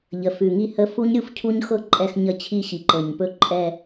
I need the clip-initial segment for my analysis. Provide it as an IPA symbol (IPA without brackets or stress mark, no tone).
ʎ